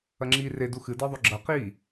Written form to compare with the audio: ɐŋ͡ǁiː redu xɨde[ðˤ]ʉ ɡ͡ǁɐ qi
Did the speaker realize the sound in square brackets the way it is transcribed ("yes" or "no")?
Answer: yes